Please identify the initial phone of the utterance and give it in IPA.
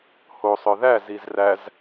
h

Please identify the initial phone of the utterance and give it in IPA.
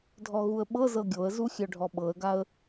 dʱ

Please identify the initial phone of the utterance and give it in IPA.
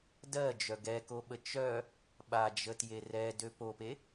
d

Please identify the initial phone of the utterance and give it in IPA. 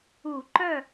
u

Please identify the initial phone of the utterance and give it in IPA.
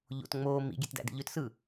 ʎ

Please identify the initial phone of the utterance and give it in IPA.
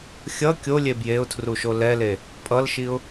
xʲ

